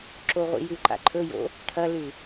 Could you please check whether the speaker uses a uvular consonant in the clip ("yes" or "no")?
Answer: yes